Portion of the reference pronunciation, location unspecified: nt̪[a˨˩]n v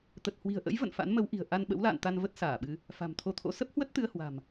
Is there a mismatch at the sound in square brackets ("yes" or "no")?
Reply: yes